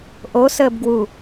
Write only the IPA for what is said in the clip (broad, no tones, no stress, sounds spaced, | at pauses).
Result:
ʔ o s əː b ɡ w u